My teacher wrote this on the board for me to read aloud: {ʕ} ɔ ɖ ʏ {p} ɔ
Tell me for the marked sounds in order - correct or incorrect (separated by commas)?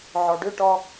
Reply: correct, incorrect